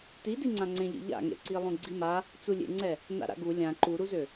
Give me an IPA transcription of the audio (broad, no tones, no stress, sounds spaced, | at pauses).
t i d i ŋ͡ǀ ã ŋ͡ǀ ẽ ʎ ḛ ʎ a̰ ŋ ḛ ǀ i lˠ ũ ɡ͡ǀ i m a | t͡s u lʲ ḛ ŋ͡ǀ ɛ | n a̰ ɾ a̰ ɡ u lʲ ã ǃ u ɾ u z ø